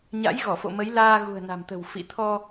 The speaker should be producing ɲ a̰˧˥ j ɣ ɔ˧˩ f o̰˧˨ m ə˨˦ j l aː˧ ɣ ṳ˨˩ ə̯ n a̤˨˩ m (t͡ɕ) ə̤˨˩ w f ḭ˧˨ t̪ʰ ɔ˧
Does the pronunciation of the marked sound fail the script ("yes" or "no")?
yes